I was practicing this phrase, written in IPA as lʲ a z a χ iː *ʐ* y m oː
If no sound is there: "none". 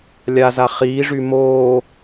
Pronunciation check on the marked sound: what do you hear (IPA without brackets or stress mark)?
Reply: ʐ